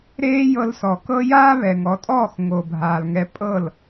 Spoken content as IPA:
ɾeː˦jɤ˧lsɔ˨kɤ˦ jaː˦βɛ˨ ŋɔ˨˦tʼɔː˦˨x ŋo˨bʱaː˨lŋɛ˧ pʼɤ˦˨l

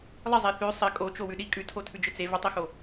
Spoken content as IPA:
lˠɪzˤe θʉ sˤɪ kʼot͡ʃowʉ ɗi kʼʉtʰotʰʉd͡ʒɪ t͡se vətˤixo

